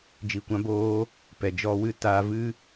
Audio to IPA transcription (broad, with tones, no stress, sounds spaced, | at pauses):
d͡ʒ i˧ kʷ ã˦ b oː˦ | p ɛ˨ d͡ʒ ɔ˧ w ɨ˦˨ t aː˧ v ɨ˦